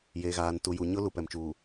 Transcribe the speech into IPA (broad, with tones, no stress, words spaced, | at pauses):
jeː˨ɣaː˨n tu˨ju˨ɲʊ˦ lu˨pɛ˨mt͡ʃuː˨